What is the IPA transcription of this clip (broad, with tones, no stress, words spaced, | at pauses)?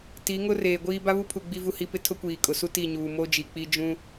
ti˨˦ŋʊ˦ reː˨ɡʷiː˦ ba˦βu˦pʰu˨ ɡ͡bi˦vu˦hi˦pɪ˦ tʰʊ˦kʷiː˨kʼʊ˨su˦ ti˦˨ɲuː˨ mo˦d͡ʒi˨k͡pi˦ d͡ʒũ˦